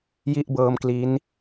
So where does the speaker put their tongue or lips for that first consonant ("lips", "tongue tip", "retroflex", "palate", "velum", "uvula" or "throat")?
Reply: palate